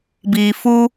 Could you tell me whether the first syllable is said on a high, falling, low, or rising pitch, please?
low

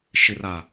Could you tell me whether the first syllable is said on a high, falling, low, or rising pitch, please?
low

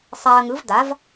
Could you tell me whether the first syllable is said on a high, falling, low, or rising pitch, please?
low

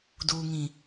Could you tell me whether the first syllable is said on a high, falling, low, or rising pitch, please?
low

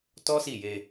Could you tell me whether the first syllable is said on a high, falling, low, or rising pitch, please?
high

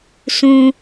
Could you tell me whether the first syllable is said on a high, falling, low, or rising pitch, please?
high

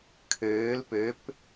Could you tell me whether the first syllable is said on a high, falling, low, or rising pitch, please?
rising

